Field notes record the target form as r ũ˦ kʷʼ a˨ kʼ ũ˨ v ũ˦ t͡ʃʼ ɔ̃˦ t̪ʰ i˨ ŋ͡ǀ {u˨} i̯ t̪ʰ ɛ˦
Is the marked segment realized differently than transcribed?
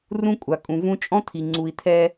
no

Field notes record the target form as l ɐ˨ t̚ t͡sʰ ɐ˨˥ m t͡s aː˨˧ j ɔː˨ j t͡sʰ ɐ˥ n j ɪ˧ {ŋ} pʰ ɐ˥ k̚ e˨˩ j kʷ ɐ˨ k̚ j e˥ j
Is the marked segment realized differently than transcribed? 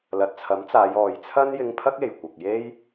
no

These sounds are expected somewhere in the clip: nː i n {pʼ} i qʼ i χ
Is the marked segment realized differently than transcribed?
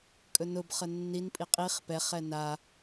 no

